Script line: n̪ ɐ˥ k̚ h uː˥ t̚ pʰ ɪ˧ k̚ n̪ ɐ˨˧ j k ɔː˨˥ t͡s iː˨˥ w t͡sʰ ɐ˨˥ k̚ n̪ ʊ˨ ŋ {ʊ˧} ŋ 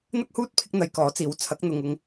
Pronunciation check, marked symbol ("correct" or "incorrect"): correct